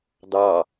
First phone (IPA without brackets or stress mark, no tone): d̪